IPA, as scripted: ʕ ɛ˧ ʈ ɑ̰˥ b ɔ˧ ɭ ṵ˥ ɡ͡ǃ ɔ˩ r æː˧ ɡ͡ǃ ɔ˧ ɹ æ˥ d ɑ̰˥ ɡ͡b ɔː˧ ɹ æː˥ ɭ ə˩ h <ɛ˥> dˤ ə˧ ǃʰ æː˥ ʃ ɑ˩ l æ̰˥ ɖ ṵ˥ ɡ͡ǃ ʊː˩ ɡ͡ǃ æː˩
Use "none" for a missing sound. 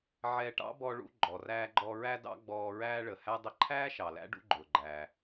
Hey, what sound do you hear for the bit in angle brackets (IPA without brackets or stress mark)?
æ˥